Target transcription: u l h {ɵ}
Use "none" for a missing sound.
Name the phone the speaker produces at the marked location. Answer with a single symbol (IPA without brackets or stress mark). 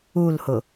ʊ